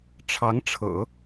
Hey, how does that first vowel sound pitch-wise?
rising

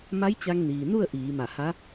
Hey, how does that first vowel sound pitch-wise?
rising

